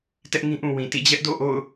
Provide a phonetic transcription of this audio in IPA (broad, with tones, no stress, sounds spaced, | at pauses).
t ɛ˦ ʔ ŋ ĩ˦ ʔ ũ˨ w ĩ˨ t ḭ˦˨ d͡ʑ ɛ˦ ʔ d o̰˦˨ ʔ o̰˦˨ ʊ̯